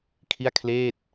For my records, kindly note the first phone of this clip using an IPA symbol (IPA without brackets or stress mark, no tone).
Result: kʰ